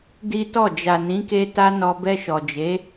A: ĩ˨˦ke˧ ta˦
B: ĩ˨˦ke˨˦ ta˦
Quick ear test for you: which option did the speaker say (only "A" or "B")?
A